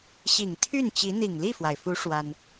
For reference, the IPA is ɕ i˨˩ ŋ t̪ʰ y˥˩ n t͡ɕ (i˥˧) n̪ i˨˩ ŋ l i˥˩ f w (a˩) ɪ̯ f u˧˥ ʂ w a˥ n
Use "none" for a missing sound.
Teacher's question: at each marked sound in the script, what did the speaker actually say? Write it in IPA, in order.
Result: i˧˥, a˩

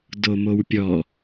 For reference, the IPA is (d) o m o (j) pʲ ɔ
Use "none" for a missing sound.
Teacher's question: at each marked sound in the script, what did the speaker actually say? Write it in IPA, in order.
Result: d, w

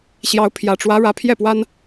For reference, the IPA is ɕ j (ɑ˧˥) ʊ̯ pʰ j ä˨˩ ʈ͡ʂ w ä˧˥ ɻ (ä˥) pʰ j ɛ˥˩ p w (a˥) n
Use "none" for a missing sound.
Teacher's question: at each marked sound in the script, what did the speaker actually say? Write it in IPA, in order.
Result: ɑ˧˥, ä˧˥, a˥

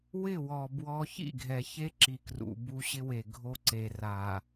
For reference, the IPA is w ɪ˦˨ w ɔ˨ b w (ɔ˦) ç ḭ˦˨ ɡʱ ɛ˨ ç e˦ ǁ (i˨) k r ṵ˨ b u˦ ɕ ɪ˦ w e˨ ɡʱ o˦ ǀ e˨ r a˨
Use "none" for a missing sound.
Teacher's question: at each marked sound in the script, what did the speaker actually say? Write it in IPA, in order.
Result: ɔ˦, i˨

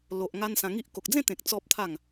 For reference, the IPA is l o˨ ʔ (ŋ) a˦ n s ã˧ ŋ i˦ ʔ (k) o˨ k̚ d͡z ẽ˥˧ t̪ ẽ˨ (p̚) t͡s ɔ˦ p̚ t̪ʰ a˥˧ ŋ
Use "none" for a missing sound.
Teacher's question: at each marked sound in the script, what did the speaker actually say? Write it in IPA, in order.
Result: ŋ, k, k̚

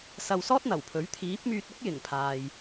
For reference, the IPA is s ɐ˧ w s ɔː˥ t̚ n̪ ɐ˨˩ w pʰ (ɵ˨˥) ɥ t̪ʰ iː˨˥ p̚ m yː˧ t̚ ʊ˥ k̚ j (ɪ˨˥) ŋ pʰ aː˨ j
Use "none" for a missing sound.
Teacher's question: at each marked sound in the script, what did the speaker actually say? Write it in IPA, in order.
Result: ɵ˨˥, ɪ˨˩

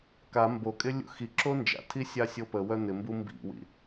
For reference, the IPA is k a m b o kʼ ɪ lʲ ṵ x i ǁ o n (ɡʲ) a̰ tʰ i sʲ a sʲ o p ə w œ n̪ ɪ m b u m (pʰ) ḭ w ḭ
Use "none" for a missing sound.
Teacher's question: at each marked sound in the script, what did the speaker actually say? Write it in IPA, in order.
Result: d͡ʒ, b

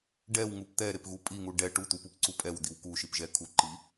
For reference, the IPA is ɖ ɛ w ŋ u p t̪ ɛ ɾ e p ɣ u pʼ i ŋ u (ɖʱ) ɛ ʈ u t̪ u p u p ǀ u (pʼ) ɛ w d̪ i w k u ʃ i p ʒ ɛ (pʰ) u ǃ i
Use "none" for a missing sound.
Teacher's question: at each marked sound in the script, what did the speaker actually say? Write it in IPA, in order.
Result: ɖ, pʼ, kʰ

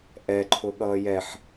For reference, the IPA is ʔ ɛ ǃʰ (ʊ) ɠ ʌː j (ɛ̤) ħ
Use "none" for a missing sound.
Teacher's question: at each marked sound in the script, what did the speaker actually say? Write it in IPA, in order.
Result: ʊ, ɛ

